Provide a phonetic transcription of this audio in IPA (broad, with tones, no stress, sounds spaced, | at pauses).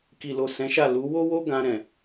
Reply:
k i˨ l o˨ s ɛ̃˨˦ ʃ a˦˨ l u˨˦ w o˦ w o˦ ɡ ã˧ ɾ ɛ̃˨